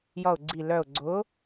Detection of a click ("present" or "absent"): present